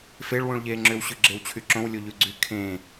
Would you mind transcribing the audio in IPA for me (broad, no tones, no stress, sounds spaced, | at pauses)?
f e ɭ w ũ ɭ ʎ eː ŋ͡ǁ ʏ w ɕ ʉ ɡ͡ǁ e w t͡ɕʰ y ǁ õ w lʲ o ʎ ʉ ɡ͡ǀ y kʰ ẽ